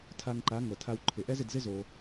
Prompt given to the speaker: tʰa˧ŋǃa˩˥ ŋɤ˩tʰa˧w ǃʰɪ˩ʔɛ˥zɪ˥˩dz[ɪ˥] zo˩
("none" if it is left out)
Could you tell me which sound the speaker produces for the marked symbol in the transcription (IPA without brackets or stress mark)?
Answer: ɪ˥